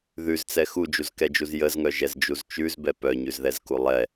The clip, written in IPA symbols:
ð ʉ z t͡s ɛ x u d͡ʒ u z k ɛ d͡ʒ u z j ə z ŋ œ ʒ ɛ z d͡ʒ u z t͡ʃ ʉ z b ɛ p œ ɲ ʉ z ð ɛ z k u lˠ ɛ

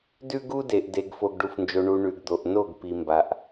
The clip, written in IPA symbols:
d ʉ˦ ɡ u˦ d e˨ ʔ d e˨ ɡ f o˨ ɡ ɖ u˨ f n d͡ʒ o˨ ɳ u˨ ɳ ʉ˨ ɡ d̪ o˨ ʔ n o˦˨ ɡ p i˨ m b a˨ ʔ

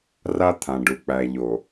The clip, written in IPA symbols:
r a˦ t̪ʰ ã˨ ɖ u˨ k͡p æ˨ ʎ o˨

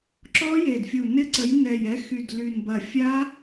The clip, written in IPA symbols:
ǁ ɔ˦˥ j e˨˩ d fʲ u˨˩ n ɪ˦˥ ǀ ə˨˦ j n ɛ˨˩ j ɛ˨˦ x y˨˩ d l y˨˩ n b ɐ˨˩ fʲ a˦˥

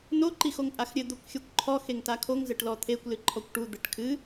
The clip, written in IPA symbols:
n o ǃ i x o ŋ pʼ a x ɾʲ ɘ d̪ o kʷ xʲ o kʷ ǃʰ ɔ x e ŋ t a kʰ o ŋ z ɘ ʈ l ɔ t̪ʰ e kʷ l ɨ ǃʰ ɔ kʷ ʈ u d̪ ɘ ʈ kʰ ɨ

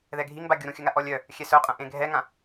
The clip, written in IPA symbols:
ð ɛ ɡʱ i ŋ b a ɡʲ u ɾ ũ xʲ œ ŋ a ʔ ɔ lʲ œ | xʲ ɛ s œ qʼ ɐ̃ ʔ ẽ ɡʱ ɛ ŋ ã

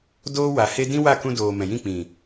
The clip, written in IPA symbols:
d oː˦ w a˨ h e˦ d ĩ˦ w a˦˨ k ũ˧ d oː˨ m ɛ̃˨ j ĩ˦˨ k͡p ĩ˨

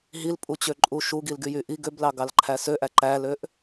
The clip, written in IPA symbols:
ɦ i l pʼ u t͡ɕ ø ǃʼ u ʃ u ɡ i l ɡ y j y ʔ i ɡ ø b l ɑ ɡ ɑ l ǃʰ æ s ø ʔ æ ǃ æ l ø ʔ

